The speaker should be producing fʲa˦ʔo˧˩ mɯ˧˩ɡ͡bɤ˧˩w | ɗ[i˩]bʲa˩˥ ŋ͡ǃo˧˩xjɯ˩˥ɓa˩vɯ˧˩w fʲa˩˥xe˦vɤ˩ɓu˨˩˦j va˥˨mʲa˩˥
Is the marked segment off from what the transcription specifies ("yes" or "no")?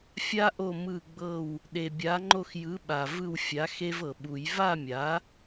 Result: yes